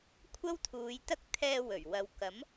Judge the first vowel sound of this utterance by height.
low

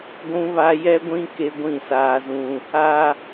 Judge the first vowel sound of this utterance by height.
high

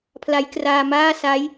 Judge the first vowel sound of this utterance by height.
low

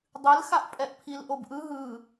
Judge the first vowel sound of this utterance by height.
high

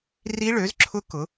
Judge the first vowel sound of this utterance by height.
high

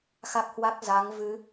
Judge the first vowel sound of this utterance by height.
low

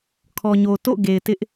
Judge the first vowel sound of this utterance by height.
mid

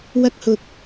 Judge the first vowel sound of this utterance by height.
low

